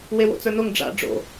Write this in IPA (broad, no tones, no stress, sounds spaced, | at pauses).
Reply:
w e w o̰ t͡s ə˞ n o ŋ ɖ͡ʐ a̰ ɖ͡ʐ o̰